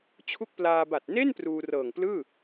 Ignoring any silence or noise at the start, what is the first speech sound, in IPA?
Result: t͡ɕʰ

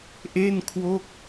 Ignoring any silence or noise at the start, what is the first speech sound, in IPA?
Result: ʔ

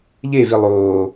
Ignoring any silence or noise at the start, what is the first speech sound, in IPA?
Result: ʎ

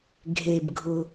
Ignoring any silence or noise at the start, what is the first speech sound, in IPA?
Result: ɡʱ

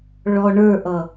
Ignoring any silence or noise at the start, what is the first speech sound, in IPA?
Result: ɭ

